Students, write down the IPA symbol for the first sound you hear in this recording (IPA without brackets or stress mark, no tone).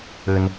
ɘ